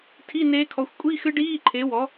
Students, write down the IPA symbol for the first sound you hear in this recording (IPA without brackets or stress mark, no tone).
tʰ